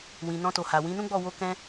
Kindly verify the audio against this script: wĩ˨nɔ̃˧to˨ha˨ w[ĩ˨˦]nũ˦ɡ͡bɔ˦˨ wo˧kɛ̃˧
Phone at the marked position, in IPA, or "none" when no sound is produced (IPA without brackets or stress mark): ĩ˨˦